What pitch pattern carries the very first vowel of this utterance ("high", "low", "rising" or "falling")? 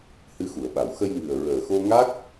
rising